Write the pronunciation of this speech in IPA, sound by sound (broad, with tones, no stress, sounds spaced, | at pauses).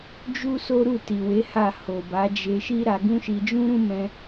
d͡ʒ u˦ s o˦ ɾ u˦˨ t i˨ w e˨˦ h a˦˨ h o˨ b a˨˦ d͡ʒ e˧ ʃ i˦ ɾ a˧ ɡ ũ˦ ʃ i˧ d͡ʒ ũ˦ ɾ ũ˦ m ɛ̃˧